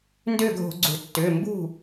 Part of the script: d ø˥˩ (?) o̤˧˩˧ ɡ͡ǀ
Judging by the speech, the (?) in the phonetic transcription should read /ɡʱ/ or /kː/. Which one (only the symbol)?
ɡʱ